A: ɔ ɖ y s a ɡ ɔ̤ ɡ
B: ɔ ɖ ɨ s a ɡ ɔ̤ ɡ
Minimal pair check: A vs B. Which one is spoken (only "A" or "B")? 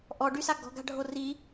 A